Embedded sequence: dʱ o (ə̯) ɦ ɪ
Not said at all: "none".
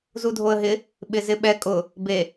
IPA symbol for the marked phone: ə̯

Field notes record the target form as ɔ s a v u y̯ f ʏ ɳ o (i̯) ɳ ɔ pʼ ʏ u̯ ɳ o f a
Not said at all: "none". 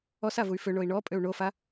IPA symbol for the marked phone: i̯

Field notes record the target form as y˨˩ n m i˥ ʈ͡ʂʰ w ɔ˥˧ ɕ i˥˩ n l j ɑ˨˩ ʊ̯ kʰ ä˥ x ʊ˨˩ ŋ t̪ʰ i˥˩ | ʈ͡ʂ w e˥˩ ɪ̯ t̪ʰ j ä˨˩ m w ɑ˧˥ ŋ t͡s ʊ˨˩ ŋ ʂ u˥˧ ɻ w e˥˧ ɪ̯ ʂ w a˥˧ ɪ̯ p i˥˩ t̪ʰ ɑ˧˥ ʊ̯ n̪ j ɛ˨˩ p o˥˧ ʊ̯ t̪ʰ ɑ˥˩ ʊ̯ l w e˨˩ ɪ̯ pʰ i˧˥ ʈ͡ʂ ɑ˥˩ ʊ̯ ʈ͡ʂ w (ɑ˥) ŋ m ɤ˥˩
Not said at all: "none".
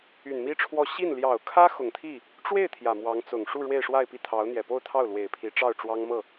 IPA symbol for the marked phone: ɑ˥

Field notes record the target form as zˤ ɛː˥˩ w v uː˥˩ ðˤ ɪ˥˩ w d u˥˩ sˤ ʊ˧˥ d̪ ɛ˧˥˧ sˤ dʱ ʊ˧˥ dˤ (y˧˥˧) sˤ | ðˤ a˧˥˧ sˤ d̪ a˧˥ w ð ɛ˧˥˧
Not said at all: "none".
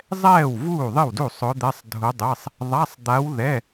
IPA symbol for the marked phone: e˧˥˧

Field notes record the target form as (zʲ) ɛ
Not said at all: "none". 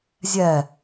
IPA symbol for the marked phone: zʲ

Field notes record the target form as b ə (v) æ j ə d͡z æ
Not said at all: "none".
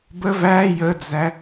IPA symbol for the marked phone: v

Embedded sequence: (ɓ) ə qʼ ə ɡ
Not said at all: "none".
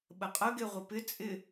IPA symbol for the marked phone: ɓ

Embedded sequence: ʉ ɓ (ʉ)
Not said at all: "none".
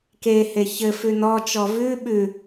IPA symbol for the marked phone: ʉ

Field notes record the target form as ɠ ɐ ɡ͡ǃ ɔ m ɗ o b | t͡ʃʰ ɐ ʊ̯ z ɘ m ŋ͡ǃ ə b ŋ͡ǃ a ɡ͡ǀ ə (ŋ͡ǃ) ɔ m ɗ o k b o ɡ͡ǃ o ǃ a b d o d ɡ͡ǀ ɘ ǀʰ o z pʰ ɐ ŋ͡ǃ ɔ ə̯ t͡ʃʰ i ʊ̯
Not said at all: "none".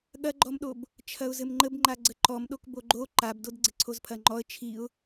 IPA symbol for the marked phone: ǃ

